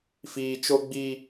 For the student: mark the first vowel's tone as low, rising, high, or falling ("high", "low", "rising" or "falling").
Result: low